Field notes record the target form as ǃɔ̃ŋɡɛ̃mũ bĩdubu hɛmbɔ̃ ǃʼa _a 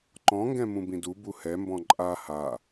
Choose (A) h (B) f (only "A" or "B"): A